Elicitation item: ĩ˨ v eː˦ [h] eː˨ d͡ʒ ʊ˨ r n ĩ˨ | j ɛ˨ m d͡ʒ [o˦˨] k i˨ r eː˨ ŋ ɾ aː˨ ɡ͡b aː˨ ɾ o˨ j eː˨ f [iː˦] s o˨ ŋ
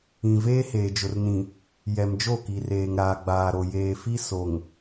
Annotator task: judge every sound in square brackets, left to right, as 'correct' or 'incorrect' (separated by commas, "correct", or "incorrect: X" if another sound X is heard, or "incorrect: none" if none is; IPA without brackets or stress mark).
correct, correct, incorrect: i˦